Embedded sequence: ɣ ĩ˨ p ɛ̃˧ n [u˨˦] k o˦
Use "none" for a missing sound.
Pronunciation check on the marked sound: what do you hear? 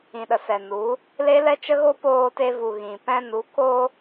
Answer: u˨˦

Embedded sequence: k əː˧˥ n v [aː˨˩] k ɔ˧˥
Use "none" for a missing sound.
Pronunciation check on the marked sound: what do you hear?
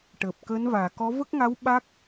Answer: aː˨˩˨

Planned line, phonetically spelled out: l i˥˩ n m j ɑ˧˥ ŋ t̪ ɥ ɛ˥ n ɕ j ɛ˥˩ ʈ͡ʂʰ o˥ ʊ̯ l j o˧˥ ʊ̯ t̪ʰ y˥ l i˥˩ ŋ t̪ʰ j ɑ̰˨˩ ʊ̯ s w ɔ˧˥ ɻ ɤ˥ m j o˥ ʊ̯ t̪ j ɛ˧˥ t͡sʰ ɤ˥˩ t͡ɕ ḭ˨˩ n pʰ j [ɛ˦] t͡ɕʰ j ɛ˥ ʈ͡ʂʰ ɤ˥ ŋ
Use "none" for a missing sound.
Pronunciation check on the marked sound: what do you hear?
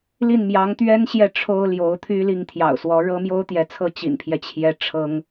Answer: ɛ˦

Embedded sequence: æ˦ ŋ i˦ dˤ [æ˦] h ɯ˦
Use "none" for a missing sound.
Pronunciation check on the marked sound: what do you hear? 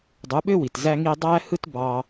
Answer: æ˦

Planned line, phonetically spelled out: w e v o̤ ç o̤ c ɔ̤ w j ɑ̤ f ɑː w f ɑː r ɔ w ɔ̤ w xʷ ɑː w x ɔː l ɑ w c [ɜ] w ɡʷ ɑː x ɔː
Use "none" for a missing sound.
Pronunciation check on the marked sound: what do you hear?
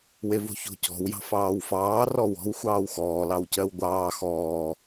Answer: ɜ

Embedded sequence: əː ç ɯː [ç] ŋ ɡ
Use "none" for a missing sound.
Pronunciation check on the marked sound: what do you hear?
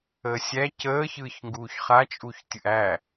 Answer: ç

